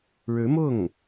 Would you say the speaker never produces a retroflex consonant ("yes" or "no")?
no